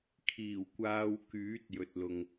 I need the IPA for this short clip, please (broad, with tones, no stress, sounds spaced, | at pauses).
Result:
kʰ iː˨˩ w kʷ aː˧ w k yː˨˥ t̚ j ɵ˨ t̚ l ʊ˨ ŋ